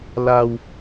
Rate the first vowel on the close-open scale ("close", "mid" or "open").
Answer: open